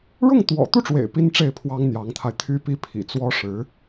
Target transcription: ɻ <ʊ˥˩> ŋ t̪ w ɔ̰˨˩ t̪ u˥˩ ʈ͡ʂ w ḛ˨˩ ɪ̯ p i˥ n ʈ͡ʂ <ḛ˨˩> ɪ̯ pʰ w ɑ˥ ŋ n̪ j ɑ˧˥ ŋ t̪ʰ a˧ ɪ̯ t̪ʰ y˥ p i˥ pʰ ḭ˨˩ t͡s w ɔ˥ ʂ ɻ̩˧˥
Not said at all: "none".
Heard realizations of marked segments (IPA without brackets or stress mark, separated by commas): ʊ˥˩, e˥˩